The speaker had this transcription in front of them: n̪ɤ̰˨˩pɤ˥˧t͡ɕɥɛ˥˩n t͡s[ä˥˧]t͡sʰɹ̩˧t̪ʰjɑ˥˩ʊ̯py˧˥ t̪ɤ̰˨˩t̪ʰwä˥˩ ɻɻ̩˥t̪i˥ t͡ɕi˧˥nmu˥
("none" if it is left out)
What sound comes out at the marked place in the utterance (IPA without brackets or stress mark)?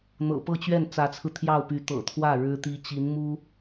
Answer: ä˧˥